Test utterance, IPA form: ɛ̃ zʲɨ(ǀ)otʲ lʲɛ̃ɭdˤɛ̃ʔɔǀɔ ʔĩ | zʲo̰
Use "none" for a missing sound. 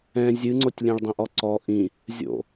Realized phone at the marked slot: ŋ͡ǀ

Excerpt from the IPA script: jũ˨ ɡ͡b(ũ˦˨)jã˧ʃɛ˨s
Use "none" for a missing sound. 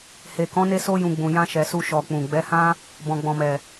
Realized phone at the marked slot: ũ˨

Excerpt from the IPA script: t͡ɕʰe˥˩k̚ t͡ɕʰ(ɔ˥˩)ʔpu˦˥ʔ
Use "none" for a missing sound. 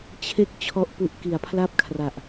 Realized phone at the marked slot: ɔ˥˩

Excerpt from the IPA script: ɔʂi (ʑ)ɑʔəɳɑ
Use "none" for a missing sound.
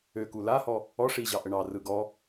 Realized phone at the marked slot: ʑ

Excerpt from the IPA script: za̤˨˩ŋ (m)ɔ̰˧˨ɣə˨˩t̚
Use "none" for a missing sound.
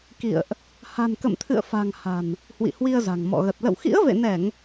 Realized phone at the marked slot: m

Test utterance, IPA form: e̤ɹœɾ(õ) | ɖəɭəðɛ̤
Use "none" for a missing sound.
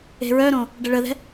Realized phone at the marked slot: õ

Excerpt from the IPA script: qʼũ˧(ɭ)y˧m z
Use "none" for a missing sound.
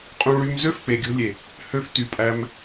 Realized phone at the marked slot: ɭ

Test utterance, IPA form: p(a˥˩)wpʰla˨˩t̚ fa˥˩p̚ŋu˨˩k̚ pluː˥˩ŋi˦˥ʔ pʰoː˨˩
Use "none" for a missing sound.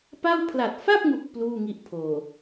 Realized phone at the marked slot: a˥˩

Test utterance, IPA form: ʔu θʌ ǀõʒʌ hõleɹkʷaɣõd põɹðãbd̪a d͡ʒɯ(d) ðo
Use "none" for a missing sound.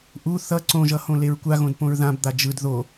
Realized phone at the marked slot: d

